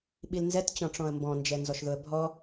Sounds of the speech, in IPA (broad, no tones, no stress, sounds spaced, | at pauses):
ɓ i l n z ɛ t t͡ɕ ɔ̃ ʈ͡ʂ ɔ̃ ə̯ m b ɔ̃ n d͡ʒ ɛ n z ɔ ʃ ð ʊ ə̯ bʱ ɔ